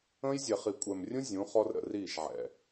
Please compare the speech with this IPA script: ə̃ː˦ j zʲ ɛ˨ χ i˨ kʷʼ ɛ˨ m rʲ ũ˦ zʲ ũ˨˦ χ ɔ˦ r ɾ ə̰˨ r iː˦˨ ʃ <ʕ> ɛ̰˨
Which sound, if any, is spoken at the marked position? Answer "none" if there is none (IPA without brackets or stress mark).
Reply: ʕ